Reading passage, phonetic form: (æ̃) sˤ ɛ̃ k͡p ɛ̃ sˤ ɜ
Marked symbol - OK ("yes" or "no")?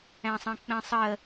yes